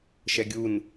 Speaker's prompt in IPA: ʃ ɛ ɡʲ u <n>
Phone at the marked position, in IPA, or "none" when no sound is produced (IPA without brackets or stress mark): n